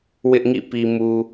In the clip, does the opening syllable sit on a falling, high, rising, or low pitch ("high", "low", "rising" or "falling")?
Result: high